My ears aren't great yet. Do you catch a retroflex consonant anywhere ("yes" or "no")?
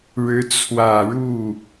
yes